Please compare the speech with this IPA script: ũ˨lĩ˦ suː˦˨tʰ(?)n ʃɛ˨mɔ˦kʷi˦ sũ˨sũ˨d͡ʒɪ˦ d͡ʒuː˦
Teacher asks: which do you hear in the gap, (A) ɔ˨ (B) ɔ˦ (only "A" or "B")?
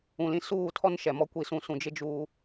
B